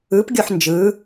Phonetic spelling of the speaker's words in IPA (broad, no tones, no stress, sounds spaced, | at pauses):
ɯ p ɡʲ o ħ n d͡ʒ ɯ